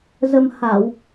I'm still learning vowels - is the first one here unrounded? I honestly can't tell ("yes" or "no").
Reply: yes